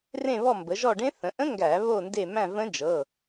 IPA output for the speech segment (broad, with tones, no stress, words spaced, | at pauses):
rẽ˦˨ βɔ˦˨mbə˩˧ʒɔ˦˨ɖẽ˦˥ θə̃˩˧ʔə̃˦˥ ŋɡæ˧˩˧βo˦˨nde˦˨ mæ̃˦˨və̃˦˥d͡ʒɤ˩˧˩